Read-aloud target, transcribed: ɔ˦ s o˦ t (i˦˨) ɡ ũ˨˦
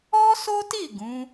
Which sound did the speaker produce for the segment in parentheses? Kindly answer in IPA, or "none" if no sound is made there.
i˦˨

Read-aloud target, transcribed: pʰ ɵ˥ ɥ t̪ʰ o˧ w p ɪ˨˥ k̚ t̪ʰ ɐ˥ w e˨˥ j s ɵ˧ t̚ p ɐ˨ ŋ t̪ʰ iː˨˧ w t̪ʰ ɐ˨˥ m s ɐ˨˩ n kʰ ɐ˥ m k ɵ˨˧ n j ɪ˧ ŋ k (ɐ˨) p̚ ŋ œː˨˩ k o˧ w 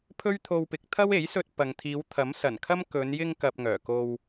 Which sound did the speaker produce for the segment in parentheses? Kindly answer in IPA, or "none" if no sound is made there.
ɐ˨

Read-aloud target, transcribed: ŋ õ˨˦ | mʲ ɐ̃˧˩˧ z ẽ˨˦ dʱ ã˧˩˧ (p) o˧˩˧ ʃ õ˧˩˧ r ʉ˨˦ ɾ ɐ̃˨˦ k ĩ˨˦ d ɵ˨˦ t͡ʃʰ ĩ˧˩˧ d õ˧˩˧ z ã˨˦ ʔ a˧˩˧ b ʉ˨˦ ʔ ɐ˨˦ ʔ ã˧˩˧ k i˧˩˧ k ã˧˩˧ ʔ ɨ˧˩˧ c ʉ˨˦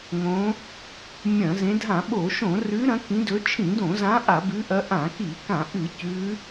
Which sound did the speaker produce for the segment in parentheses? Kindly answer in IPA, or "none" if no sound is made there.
ɓ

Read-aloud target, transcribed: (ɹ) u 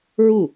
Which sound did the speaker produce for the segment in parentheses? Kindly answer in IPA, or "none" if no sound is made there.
ɹ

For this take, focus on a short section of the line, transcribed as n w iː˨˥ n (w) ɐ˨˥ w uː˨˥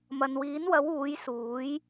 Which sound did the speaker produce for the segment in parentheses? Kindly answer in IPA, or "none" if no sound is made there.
w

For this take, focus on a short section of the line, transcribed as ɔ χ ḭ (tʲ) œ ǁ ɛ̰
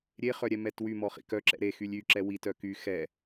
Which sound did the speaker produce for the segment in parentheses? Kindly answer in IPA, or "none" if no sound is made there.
k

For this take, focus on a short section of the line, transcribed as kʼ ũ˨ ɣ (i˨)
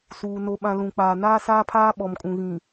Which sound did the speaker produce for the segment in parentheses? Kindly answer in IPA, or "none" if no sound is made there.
ĩ˨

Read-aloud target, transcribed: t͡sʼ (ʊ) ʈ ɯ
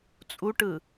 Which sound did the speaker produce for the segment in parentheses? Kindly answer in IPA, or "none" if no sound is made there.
u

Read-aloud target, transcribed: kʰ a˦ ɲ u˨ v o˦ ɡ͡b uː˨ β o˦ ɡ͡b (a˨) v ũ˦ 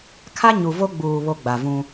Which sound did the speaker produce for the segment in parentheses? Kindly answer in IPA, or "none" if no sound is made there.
a˨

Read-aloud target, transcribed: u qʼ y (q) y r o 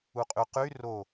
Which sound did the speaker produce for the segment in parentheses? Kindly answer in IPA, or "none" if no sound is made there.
q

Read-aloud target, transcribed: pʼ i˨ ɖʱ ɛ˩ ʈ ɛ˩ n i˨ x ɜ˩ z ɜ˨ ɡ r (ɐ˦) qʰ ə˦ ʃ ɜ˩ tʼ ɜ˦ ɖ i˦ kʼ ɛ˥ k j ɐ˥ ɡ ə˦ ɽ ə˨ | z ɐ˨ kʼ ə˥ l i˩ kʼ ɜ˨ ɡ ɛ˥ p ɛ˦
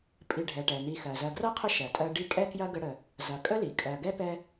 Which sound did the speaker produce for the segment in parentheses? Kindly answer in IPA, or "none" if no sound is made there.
ɐ˥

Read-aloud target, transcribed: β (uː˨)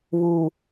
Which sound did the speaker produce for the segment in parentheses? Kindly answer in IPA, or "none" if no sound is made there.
uː˨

